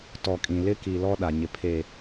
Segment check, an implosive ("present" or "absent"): present